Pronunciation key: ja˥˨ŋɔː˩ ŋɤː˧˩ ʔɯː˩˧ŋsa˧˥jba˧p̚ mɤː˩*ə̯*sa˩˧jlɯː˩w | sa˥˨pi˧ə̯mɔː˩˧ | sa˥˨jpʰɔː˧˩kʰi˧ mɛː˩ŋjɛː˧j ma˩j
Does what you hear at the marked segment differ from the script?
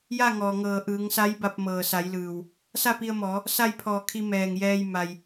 yes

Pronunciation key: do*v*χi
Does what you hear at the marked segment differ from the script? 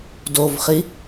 no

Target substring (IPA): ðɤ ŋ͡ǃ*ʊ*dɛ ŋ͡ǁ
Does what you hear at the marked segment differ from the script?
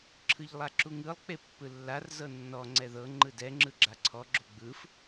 yes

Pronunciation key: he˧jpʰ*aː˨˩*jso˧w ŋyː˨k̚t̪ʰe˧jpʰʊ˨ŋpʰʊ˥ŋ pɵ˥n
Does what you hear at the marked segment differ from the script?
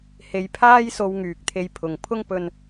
yes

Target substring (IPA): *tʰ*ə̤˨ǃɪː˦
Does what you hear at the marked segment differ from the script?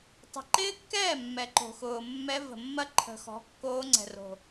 yes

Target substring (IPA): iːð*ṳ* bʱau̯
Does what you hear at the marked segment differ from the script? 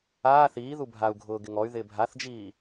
yes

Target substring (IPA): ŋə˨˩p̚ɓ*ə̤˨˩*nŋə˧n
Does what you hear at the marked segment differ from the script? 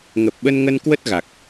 yes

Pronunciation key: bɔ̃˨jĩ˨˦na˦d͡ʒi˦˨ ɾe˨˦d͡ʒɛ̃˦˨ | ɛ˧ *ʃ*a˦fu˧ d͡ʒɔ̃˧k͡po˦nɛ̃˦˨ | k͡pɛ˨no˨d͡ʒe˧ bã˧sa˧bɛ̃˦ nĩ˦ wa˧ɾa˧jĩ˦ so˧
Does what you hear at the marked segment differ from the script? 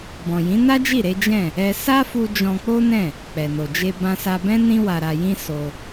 yes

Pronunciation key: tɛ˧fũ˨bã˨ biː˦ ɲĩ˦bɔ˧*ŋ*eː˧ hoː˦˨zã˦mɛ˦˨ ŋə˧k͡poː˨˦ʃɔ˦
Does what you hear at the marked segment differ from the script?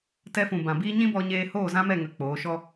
yes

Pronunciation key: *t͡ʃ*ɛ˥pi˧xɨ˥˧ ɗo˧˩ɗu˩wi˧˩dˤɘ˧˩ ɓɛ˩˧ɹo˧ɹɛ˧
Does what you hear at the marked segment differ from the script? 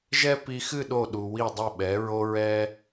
yes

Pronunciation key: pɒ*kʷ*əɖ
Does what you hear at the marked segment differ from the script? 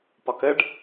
yes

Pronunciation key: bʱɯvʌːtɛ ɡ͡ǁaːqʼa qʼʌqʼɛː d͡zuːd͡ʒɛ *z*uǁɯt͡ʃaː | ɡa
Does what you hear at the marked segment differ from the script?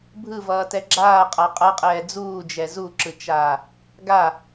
no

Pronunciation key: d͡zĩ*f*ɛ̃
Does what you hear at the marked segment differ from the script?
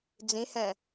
yes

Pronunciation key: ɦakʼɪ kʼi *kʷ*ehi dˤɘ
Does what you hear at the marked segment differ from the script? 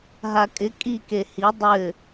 yes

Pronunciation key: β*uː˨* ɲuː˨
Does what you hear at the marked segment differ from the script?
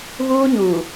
yes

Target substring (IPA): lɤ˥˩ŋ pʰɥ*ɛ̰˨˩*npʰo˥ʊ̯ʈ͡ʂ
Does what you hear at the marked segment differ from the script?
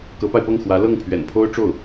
no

